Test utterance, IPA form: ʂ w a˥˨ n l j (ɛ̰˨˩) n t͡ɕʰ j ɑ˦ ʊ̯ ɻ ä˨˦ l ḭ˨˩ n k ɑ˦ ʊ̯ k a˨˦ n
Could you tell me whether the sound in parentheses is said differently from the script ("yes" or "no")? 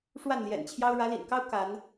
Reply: no